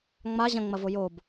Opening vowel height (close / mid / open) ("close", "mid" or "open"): open